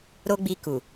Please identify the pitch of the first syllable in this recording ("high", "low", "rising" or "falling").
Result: high